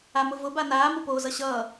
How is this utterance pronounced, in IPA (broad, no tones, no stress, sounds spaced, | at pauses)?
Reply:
a m ʊ v ʊ b a n aː m ʊ p oː z ʌ ɕ ʌː